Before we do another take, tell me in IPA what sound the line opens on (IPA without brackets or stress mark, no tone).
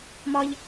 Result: m